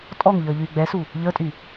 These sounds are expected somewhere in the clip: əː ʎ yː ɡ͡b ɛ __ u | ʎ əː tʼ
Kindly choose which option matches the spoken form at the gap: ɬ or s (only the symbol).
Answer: s